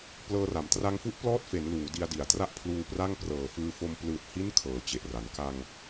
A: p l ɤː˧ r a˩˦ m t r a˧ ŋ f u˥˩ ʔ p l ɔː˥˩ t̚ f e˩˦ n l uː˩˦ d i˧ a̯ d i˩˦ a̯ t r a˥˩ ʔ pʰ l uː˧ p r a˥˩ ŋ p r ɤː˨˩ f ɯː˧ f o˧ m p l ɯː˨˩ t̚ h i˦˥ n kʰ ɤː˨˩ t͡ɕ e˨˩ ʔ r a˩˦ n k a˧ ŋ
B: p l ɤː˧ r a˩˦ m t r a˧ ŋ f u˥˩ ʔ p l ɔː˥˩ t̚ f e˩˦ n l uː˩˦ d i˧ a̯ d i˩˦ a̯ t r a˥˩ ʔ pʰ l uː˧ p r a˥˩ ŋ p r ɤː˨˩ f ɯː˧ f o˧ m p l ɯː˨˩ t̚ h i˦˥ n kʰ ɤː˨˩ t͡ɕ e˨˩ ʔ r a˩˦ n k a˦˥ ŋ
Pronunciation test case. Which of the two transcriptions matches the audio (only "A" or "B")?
A